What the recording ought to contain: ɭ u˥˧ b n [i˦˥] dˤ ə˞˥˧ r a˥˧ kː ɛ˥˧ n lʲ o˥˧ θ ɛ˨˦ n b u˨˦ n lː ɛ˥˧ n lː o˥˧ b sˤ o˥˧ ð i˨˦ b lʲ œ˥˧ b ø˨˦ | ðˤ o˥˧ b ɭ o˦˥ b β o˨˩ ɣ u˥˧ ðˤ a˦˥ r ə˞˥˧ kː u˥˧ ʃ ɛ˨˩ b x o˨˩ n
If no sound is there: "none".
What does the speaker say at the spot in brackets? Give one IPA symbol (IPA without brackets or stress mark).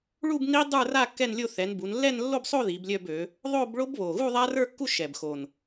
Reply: i˦˥